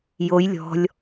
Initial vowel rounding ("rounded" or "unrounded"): rounded